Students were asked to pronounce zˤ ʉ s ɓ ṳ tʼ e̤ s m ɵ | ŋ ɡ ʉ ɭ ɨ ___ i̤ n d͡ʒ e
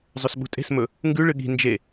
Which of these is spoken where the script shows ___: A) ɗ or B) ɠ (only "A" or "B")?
B